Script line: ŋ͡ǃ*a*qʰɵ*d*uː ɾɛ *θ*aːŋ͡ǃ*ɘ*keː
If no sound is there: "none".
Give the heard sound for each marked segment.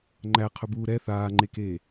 æ, b, θ, e

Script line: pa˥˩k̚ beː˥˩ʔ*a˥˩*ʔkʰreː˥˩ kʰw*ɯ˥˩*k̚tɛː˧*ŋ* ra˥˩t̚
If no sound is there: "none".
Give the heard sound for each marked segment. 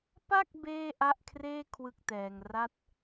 a˥˩, ɯ˥˩, ŋ

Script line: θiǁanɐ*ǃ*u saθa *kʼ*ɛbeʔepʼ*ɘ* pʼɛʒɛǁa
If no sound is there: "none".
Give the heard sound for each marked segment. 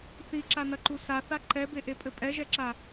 ǃ, ǃ, ɘ

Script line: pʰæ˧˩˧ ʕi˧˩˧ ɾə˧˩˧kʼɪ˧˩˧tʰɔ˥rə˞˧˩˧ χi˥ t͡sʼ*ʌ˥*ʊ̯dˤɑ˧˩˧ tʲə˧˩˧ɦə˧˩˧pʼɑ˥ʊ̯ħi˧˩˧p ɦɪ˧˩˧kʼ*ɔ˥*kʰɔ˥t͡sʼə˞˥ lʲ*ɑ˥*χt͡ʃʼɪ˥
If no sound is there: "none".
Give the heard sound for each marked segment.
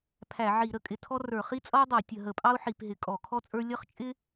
ʌ˥, ɔ˧˩˧, ʌ˥

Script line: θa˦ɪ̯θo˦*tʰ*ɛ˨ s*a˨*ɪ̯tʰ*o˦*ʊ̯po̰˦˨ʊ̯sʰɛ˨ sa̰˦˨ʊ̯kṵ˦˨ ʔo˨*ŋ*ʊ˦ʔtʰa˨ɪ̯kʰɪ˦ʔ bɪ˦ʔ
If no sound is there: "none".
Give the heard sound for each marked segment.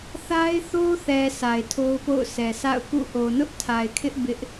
θ, a˨, o˦, n

